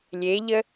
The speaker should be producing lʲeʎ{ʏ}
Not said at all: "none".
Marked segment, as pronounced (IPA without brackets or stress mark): ə